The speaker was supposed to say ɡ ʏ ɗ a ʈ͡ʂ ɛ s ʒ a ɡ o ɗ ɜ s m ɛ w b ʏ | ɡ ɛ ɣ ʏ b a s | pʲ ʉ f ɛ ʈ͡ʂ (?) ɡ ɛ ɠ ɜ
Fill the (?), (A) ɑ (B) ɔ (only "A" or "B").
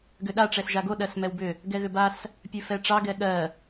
A